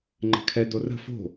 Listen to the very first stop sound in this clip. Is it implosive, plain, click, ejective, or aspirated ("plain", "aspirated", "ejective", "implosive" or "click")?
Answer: click